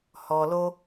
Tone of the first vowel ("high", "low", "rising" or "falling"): low